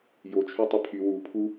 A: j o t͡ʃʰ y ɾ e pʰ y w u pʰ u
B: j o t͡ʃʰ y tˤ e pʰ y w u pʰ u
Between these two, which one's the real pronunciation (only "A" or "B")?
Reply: B